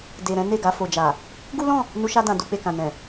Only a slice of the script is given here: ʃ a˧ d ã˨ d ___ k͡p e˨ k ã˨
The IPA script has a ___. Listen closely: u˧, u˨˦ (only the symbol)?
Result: u˧